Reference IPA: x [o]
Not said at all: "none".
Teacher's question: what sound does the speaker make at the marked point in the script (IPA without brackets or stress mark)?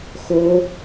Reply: o